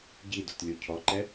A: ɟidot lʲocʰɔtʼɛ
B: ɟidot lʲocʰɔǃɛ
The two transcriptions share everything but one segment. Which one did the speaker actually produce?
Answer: B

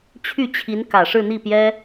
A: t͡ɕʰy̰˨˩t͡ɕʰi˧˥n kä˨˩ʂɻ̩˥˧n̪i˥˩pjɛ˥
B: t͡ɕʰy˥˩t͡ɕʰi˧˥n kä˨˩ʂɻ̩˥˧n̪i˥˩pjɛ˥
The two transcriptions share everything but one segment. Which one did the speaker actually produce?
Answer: B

